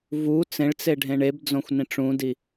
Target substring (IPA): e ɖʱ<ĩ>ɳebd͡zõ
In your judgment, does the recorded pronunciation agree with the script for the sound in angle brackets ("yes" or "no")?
no